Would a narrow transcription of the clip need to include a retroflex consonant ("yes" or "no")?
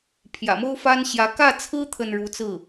yes